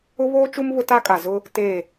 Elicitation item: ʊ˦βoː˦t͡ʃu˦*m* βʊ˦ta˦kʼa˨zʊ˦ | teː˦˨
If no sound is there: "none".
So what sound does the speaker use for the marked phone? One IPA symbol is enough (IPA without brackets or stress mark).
m